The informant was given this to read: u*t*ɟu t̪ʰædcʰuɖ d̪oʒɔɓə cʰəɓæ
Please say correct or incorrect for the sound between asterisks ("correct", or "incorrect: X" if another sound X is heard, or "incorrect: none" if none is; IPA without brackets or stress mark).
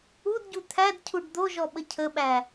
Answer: incorrect: d